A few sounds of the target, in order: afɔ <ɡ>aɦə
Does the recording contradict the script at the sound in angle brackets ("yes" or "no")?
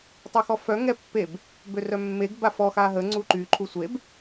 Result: yes